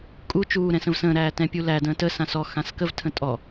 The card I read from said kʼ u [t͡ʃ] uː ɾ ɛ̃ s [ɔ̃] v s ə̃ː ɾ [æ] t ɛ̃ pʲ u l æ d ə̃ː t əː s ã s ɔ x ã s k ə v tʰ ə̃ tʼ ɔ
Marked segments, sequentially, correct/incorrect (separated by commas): correct, incorrect, incorrect